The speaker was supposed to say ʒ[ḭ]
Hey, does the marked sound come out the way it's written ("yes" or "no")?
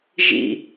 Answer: yes